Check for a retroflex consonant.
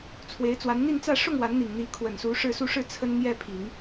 present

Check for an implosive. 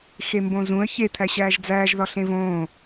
absent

